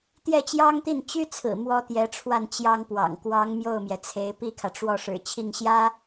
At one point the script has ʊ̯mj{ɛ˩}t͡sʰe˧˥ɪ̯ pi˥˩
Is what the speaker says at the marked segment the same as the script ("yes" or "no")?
yes